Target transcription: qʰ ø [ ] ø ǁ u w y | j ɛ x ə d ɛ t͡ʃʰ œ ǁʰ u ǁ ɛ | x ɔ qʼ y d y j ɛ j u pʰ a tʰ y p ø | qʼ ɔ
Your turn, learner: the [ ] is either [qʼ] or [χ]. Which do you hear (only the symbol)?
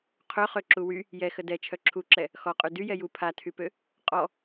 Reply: χ